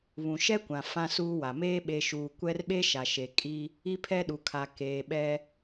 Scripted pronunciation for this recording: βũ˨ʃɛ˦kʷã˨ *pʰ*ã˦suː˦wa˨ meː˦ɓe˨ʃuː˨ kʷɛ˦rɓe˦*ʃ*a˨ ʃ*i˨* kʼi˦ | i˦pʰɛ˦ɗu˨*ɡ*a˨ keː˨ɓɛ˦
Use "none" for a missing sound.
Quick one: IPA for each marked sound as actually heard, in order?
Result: f, ʃ, e˨, kʰ

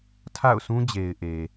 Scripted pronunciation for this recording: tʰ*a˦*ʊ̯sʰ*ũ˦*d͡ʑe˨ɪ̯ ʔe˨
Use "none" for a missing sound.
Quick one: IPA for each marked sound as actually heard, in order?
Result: a̰˦˨, ũ˦

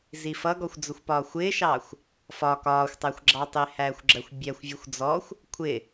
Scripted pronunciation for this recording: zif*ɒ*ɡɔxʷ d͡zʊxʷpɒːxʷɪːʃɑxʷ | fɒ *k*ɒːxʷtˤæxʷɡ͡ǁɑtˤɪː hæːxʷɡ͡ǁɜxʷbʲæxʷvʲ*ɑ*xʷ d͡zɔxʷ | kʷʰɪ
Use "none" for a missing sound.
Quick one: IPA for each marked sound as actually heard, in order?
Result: ʌ, k, ʌ

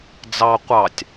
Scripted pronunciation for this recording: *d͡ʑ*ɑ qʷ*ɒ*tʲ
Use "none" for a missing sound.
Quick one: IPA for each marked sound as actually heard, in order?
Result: d͡z, ɑ

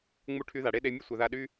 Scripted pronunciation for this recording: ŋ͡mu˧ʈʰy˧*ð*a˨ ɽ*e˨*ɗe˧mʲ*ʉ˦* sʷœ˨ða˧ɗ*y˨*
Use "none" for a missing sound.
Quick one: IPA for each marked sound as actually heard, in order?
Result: ð, e˧, ə˦, y˦

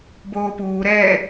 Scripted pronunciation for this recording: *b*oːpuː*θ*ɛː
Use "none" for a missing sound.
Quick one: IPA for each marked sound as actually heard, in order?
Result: b, ɾ

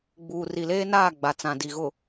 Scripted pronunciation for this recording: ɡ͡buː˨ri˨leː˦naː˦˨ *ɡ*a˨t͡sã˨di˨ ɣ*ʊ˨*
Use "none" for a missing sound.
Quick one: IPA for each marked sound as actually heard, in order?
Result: ɡ͡b, ʊ˨

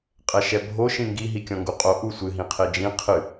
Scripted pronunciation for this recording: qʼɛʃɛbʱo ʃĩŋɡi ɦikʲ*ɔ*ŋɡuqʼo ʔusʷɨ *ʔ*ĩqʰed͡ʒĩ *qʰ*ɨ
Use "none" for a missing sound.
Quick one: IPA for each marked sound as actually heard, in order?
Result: ɔ̃, ɦ, qʰ

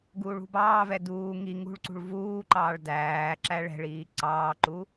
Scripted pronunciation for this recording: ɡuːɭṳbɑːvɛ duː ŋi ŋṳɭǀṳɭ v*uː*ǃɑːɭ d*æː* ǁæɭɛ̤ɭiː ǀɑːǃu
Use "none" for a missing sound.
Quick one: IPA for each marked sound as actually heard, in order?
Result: uː, æː

